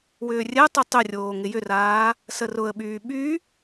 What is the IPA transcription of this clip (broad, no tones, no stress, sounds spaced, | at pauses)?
w ʏː rʲ ɛ tˤ y tˤ ʏ rʲ oː ŋ ɪ j ʏ r aː | s ə r ʊ ə̯ ɓ yː ɓ y